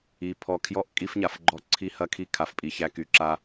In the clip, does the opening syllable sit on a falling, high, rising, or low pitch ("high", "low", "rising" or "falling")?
low